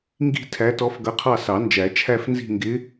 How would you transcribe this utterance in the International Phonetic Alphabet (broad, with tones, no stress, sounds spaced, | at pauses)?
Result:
ŋ ɡ i̤˥˧ tʰ æ˧˥ t ɔ˧˥ f ɡ ʌ˧˥ qʰ ɑ˥˧ s ɑ˨˩˦ n d͡ʒ æ˨˩˦ t͡ʃʰ æ˥˧ f n z i̤˥˧ ŋ ɡ ɪ˧˥